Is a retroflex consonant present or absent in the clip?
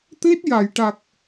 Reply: present